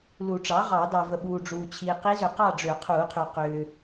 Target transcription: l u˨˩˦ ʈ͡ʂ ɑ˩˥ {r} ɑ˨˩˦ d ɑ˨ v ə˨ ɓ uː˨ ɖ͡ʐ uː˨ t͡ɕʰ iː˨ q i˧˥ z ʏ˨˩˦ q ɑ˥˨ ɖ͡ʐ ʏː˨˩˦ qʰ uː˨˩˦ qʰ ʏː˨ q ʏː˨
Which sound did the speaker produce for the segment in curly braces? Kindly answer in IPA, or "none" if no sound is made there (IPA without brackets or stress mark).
ʁ